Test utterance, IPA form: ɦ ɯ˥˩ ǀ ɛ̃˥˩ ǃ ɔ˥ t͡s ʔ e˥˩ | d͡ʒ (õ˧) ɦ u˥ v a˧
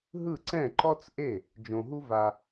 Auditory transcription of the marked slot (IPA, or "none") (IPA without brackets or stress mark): õ˧